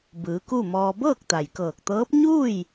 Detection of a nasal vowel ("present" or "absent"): absent